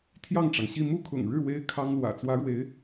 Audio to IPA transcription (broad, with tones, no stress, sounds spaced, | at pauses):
t̪ʰ j ɑ˥˩ ŋ ʈ͡ʂ ɑ˩ ŋ ɕ i˥˧ m u˥˩ kʰ ʊ̰˨˩ ŋ ɻ ɻ̩˥˩ w e˥ ɪ̯ kʰ ɑ˥ ŋ l w ä̰˨˩ t͡s w ä˧˥ ɻ w e˧˥ ɪ̯